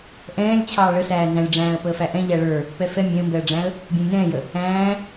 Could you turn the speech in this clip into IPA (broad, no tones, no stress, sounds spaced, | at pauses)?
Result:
ʔ ɛ̃ː lʲ t͡ɕʰ ɑː ɭ ə s æː n z æ̃ lʲ ɖ͡ʐ æ̃ː ə̯ p əː f æ ʔ ɛ̃ ʎ æ ɭ ə˞ | p ɛ f ɛ mʲ ɛ̃ ə̯ m b ɛ ə̯ ɖ͡ʐ æ̃ ə̯ | bʲ ɛ̃ lʲ n ɛ̃ː j ə | æ̃ː